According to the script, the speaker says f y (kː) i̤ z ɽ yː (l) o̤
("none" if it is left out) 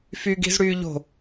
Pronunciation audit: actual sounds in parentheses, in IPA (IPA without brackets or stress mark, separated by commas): ɡ, ʎ